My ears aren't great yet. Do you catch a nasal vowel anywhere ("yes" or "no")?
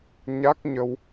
no